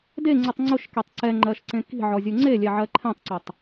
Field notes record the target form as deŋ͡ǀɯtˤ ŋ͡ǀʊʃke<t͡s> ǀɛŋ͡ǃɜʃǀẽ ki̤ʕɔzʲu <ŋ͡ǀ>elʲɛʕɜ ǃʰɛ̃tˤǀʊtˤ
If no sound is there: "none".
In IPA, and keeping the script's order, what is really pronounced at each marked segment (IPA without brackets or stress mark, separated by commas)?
tˤ, ŋ͡ǀ